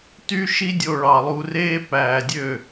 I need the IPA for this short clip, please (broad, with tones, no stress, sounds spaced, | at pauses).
t y˦ ʃ i˦ dʲ o˧ ɭ ɑ˨ lˠ u˧ r eː˦ p æː˨ dʲ ø˦˨